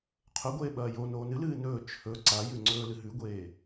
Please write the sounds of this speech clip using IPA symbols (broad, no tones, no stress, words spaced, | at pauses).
qʰɵɡʷeː ɓɐːjo noːnɨ lɨːnɵː t͡ʃʰɵ ǀajʉŋ͡ǀɵː lɨɦʉɡʷeː